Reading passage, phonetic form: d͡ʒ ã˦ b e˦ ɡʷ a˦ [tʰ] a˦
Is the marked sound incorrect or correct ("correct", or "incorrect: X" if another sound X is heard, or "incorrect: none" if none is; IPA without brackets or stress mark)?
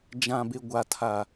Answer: correct